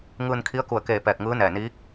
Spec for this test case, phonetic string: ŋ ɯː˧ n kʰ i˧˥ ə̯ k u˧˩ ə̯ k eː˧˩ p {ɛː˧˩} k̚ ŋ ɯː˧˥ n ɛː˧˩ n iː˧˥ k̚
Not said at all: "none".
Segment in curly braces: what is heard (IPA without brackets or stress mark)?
ɛː˧˩